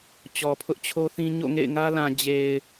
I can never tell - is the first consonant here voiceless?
yes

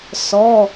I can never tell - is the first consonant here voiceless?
yes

